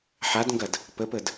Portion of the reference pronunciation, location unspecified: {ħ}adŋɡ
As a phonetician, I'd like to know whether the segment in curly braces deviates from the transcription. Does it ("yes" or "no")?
no